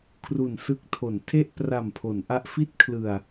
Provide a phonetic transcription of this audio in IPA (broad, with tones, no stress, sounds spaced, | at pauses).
kʰ r u˨˩ n s ɯ˦˥ k̚ tʰ o˩˦ n tʰ e˥˩ ʔ p r a˨˩ m pʰ o˩˦ n ʔ a˦˥ ʔ f i˥˩ t̚ kʰ l ɯ˨˩ a̯